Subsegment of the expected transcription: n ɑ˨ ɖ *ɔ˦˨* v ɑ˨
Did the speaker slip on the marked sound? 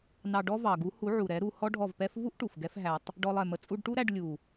yes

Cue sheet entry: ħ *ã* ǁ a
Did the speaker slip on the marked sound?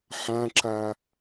no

